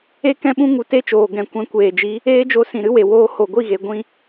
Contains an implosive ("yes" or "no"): yes